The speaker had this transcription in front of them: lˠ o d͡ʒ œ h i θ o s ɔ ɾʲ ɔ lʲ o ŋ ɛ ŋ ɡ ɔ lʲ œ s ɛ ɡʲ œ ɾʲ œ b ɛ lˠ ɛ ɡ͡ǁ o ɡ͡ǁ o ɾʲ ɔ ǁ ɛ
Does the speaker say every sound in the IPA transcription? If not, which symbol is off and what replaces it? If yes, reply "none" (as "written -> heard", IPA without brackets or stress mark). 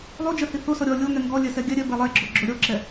none